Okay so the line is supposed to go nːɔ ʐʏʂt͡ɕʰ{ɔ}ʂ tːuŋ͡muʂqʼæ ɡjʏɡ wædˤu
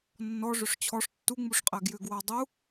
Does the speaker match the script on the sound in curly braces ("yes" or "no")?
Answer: yes